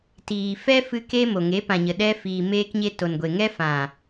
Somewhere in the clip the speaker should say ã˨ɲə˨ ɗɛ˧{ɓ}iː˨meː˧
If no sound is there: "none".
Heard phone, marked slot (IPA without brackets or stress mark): f